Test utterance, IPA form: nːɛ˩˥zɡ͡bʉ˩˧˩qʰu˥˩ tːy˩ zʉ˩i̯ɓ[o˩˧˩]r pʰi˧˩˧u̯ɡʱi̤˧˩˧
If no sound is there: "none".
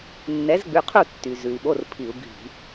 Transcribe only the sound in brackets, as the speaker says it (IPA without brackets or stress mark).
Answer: o˩˧˩